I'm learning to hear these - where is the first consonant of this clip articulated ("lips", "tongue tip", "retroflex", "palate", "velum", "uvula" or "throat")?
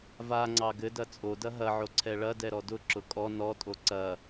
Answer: lips